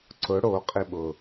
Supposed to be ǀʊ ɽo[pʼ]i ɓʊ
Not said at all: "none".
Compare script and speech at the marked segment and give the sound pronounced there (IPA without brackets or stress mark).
qʼ